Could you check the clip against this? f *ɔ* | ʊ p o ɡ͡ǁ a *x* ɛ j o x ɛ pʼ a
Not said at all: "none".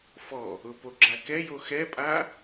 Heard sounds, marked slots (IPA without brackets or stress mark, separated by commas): ɔ, k